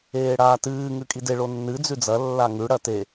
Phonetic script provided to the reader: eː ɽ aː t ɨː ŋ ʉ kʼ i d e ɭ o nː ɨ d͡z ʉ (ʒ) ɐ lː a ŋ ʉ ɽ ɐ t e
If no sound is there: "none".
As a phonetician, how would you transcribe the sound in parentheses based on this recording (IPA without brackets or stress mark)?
d͡z